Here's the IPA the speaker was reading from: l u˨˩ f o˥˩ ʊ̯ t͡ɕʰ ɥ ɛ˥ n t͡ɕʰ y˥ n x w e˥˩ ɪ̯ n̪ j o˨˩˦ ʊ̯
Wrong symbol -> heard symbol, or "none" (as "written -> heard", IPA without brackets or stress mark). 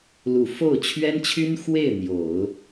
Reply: none